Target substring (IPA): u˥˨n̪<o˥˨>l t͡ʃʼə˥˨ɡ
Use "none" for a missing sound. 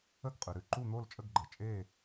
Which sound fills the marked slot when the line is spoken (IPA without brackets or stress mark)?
o˥˨